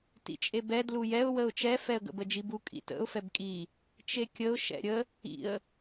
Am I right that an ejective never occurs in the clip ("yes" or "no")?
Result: no